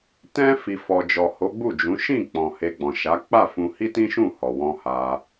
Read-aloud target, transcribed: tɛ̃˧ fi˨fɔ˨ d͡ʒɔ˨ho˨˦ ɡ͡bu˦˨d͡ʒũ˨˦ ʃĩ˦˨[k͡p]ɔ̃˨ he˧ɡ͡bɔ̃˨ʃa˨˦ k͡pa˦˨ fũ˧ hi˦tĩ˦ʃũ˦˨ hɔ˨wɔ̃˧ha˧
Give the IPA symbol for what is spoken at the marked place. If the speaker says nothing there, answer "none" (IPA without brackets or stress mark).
k͡p